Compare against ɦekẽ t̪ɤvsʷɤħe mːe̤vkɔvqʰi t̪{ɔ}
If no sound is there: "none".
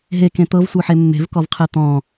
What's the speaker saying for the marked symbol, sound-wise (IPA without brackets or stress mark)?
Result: ɔ̃